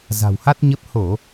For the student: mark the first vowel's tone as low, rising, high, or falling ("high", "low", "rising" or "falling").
low